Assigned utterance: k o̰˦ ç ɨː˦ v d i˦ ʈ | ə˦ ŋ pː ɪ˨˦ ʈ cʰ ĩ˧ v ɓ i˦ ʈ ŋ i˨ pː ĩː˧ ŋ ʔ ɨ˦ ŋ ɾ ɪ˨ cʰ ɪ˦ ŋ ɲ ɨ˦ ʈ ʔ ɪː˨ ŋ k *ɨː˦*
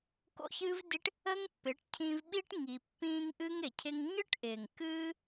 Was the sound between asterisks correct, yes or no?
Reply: yes